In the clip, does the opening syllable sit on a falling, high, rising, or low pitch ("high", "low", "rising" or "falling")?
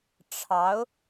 rising